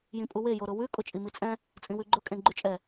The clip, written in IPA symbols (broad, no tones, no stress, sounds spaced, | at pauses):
j ĩ pʼ u w e j o ɾ ʊ w ʉ kʼ ʊ t͡ʃʼ i m i t͡sʼ ɛ̃ | t͡sʼ ĩ w ʉ ɡ͡ǃ ʊ kʼ ẽ ɡ͡ǃ ʉ t͡ʃʼ ɛ